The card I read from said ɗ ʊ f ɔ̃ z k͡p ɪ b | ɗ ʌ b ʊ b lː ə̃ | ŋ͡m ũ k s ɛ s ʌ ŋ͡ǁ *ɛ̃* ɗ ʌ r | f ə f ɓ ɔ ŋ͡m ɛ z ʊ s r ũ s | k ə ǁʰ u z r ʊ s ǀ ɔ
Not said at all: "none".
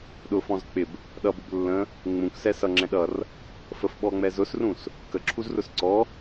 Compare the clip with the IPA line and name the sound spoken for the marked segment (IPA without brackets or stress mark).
ɛ̃